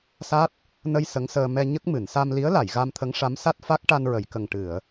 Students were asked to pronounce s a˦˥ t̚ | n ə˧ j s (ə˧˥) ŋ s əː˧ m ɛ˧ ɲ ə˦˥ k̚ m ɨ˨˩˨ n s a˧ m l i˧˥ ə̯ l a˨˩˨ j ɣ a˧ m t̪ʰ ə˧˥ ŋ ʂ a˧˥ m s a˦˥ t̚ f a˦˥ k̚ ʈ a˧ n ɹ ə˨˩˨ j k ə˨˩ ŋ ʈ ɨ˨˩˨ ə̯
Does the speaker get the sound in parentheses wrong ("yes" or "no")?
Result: no